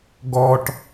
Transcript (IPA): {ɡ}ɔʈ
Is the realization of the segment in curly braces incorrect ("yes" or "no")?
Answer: no